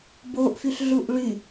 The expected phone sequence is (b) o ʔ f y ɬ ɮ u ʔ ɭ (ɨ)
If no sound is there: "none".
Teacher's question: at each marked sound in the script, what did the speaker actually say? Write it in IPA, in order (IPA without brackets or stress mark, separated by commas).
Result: b, y